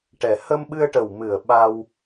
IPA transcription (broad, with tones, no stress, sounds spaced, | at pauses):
ʈ ɛ˨˩ h ə˧ m ɓ ɨ˧ ə̯ ʈ ə˨˩ w m ɨ˨˩ ə̯ ɓ a˧ w